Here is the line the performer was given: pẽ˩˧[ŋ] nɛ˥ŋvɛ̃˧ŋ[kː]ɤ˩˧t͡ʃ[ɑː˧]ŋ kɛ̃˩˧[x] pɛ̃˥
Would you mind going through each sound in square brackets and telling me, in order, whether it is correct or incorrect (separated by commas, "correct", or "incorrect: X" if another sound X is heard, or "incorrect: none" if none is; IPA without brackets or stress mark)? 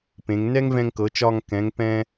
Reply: correct, incorrect: k, incorrect: ɒː˧, incorrect: ŋ